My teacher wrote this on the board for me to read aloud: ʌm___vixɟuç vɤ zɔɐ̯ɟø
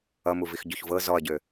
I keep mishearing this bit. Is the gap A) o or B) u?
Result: B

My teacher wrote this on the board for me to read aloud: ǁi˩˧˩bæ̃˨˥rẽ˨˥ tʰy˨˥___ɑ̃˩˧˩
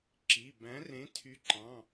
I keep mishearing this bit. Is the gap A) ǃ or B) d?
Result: A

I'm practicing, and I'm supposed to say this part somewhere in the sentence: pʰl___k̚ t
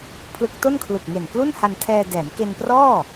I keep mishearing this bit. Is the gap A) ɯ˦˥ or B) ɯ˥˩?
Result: A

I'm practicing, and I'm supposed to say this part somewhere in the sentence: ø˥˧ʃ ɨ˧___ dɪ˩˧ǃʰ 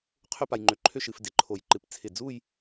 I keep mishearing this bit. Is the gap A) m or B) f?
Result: B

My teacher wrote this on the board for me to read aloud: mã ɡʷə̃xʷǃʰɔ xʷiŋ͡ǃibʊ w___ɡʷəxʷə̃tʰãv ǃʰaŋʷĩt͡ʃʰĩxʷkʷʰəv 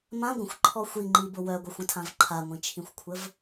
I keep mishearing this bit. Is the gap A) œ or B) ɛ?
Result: A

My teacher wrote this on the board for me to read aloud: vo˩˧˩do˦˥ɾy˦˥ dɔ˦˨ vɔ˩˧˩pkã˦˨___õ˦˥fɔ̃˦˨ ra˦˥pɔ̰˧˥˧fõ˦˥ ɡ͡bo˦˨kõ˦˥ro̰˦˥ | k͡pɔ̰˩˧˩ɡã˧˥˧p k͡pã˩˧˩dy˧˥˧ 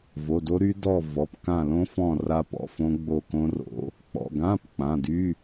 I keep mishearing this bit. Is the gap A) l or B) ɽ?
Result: A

